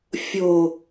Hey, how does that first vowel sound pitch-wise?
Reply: low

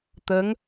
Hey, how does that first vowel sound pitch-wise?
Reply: rising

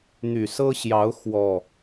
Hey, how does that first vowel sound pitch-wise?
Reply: low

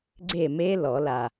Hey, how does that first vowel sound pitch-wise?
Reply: falling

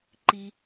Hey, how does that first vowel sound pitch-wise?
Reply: low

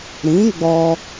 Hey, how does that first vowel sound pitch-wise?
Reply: rising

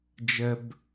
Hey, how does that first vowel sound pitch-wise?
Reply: low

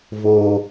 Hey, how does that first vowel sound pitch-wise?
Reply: high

